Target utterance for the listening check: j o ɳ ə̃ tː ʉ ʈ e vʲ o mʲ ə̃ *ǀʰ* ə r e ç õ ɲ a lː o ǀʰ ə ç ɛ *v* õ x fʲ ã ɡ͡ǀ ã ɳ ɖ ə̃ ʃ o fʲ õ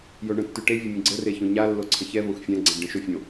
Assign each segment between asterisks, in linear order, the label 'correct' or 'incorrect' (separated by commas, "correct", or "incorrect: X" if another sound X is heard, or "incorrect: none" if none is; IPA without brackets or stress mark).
incorrect: ɡ͡ǀ, correct